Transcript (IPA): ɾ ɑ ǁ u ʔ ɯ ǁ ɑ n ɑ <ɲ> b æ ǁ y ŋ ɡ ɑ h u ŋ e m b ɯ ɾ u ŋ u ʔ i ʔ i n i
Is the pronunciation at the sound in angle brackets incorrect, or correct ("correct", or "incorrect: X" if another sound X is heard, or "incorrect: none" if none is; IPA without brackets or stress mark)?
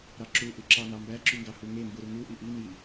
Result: incorrect: m